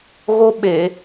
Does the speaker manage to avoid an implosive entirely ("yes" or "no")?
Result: no